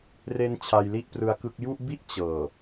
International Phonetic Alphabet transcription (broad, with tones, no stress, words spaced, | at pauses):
re˧n t͡ɕʰa˧jli˥˩ʔprɯ˦˥a̯kɯ˦˥k̚ ju˥˩ʔbi˥˩ʔ t͡ɕɤː˨˩